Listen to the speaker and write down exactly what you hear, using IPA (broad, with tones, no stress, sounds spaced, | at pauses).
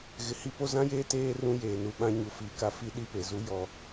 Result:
ɣ ɪ˨ h i˦ p o˦ z ã˦ j eː˦ t eː˦ r ũ˦ j eː˨ n u˨ ɓ ã˦ ɲ u˨ f iː˨ k a˦ f i˦ ɗ i˦ p e˨ z u˦ j ɔ˦